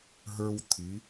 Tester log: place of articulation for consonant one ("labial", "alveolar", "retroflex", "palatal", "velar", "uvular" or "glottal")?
glottal